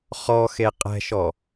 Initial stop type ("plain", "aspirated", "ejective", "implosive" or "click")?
ejective